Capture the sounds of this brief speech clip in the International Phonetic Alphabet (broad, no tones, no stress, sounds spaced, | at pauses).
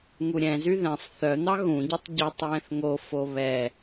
ŋ u ɾʲ ɛ̃ z y ð ɛ̃ sˤ θ œ n̪ ɑ ɣ ũ ɟ u tˤ ɟ œ tˤ w ɛ̃ θ ŋ o f o β ɛ